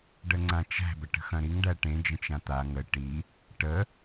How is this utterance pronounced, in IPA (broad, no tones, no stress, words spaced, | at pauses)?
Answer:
ɖəŋ͡ǀãt͡ʃæ̤ bɐʈə̤xɐ̃ɾiŋ ɖæʈẽ d͡ʒə̃t͡ʃãt̪a ŋə ʈi | ʈə